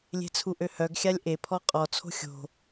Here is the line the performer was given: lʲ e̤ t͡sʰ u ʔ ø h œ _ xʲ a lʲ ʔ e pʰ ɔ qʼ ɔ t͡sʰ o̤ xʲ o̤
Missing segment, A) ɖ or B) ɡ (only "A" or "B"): B